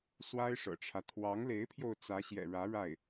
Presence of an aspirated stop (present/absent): present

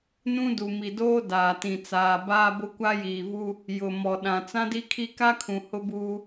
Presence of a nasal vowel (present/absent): present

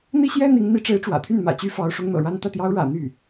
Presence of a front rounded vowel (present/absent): present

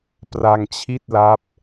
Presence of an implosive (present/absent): absent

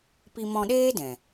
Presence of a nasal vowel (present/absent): present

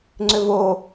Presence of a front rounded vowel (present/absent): present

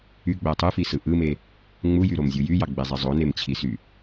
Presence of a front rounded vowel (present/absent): present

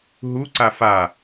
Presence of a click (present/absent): present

